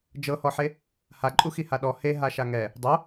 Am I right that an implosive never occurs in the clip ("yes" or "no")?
no